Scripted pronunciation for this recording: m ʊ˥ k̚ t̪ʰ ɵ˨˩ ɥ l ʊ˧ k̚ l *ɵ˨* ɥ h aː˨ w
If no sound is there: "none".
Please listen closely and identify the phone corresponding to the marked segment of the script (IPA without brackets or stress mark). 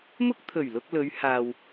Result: ɵ˨˧